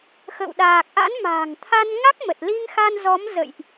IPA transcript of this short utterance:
xə̰ː˧˨wɗaː˨˩k̚ ʔa̰˧˥nma̤ː˨˩ŋ t̪ʰa˧n ŋa˦˥k̚mə˨˩t̚li˧ŋxa˧n zɔ˨˦m zə̰˧˨jʔ

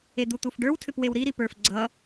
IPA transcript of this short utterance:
ed̪ut̪ufɖə˞w tʰʏpwewɾi ɾipə˞f ɡ͡ǀʌ

